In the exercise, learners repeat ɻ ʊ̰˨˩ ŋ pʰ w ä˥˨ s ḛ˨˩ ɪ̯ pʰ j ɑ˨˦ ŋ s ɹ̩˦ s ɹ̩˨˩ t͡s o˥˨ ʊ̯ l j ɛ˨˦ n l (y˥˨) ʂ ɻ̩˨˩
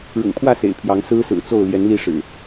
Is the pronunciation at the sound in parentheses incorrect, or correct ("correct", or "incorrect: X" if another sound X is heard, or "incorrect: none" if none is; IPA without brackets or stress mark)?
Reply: incorrect: i˥˨